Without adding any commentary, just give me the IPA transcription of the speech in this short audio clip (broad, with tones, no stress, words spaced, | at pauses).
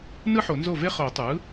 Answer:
nɯ˥ħo˨˩˦nzo˥˩ve˥ χo˨˩˦tˤɯ˩˥